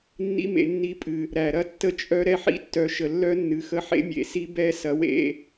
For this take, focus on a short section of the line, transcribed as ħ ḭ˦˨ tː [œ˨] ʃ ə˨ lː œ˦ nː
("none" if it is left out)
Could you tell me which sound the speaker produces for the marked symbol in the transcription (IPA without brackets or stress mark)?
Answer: œ˨˦